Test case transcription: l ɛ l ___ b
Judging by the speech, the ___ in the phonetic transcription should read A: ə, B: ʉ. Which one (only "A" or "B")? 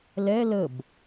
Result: A